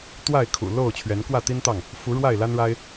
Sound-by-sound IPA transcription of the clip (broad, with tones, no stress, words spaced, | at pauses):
t̪wa˥˨ɪ̯kʰṵ˨˩lo˥˨ʊ̯ t͡ɕʰɥɛ˨˦nkwä˥˨t̪i˦nt̪ɑ˥˨ŋ | fu˨˦ ɻwa˥˨ɪ̯la˦nɻa˦ɪ̯